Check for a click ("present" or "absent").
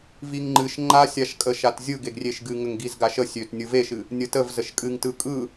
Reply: present